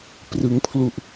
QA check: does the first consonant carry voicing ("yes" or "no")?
no